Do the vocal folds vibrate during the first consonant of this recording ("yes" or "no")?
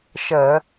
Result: no